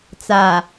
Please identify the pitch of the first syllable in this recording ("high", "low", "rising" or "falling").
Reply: low